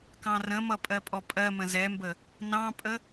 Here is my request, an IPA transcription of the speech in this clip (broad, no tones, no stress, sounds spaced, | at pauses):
k ɑ̃ r ə̃ m ʌ pʼ ɜ pʼ ɔ pʼ ɜ m ə̃ z ɛ m b ə | n ɑ̃ pʼ ə